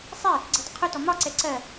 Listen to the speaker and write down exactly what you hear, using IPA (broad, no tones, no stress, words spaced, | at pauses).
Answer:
sˤɛ | ɡ͡ǀɪdˤəqʰʊtɔ mɒǀɛ ǀɜ